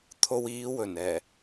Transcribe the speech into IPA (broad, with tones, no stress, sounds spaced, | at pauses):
t̪ʰ o˧ w iː˨˧ w ɵ˨˩ n ɛː˨˩